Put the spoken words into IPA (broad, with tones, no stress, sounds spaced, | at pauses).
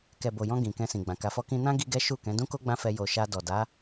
k ɛ˨ b o˨ j ɔ̃˧ ɡ ĩ˨ k ɛ̃˧ s ĩ˨ ɡ͡b ã˨ k a˨ f ɔ˧ k ĩ˧ n ã˦ ɡ i˦ ɡ ɛ˦ ʃ u˦˨ k ɛ̃˨˦ d ũ˦ k o˦ ɡ͡b ã˦ f ɛ˧ j o˨ ʃ a˧ d ɔ˨ d a˨˦